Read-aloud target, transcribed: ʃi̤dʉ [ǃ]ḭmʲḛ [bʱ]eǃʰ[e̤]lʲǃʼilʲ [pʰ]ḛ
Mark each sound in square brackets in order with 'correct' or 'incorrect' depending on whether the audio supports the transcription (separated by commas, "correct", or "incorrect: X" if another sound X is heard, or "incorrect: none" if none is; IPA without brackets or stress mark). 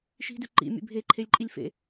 correct, correct, incorrect: e, incorrect: f